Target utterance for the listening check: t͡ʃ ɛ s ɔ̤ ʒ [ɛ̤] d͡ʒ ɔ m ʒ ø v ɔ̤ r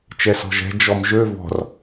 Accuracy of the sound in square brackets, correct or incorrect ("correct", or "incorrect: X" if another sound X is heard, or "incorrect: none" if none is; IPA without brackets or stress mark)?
correct